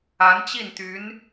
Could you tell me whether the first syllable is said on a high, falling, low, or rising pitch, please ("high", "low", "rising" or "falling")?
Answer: rising